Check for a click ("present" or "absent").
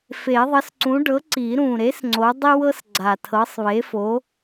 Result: present